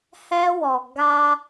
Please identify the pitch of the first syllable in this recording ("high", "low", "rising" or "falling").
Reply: high